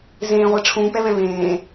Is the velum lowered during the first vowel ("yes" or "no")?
yes